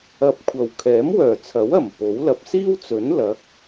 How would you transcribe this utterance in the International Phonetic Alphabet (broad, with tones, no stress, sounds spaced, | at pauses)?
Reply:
ɐ˨ p̚ kʷʰ ɐ˨˩ w kʰ ɛː˨˥ m w œː˨˩ t͡sʰ ɐ˨˥ w ɐ˨˩ m p o˨˥ w l ɐ˧ p̚ s iː˥ w t͡s ɵ˨˥ n l ɐ˨˥ k̚